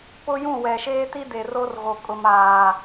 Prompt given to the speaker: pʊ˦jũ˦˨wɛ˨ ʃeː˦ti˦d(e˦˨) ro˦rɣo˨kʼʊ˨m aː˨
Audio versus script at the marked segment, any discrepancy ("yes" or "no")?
yes